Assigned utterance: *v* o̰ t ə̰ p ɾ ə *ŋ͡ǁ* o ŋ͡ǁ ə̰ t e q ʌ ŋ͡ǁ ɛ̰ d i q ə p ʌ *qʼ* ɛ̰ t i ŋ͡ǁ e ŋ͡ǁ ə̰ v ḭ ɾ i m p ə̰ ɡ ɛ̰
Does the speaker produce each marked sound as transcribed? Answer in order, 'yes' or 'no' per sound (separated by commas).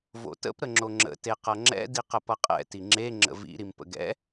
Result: yes, yes, yes